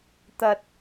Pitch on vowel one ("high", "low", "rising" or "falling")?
low